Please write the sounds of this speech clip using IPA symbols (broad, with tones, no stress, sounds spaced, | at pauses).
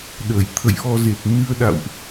ɗ əː˧˩ j t̪ʰ ə̰˧˨ j ʔ ɔ˧ z e˨˩ t̚ n ɨ˧ ə̯ ɗ a̰˧˨ w ʔ